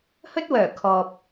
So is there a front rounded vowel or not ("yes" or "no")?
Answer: yes